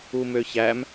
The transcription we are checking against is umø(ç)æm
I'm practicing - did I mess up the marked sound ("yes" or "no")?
no